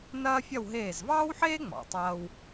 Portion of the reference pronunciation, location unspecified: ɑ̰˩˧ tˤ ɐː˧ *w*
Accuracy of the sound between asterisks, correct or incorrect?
correct